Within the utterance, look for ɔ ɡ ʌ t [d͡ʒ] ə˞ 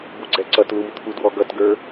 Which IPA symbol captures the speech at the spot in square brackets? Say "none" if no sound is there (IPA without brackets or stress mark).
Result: ɡ